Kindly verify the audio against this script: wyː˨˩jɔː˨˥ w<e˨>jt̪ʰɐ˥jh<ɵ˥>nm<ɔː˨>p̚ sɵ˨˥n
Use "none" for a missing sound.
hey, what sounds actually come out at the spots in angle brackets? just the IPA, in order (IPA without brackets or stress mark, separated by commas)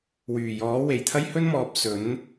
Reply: e˨˩, ɵ˥, ɔː˨